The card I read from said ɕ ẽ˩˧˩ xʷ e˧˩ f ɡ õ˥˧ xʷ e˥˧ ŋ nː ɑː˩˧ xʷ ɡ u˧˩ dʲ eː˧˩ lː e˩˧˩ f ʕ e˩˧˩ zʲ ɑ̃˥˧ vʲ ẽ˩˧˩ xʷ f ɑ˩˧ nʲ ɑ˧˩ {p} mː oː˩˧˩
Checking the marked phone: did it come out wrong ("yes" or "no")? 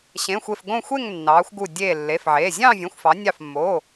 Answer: yes